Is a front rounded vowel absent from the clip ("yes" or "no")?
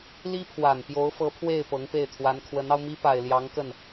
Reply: yes